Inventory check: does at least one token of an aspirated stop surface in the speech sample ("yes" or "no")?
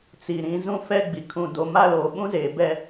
yes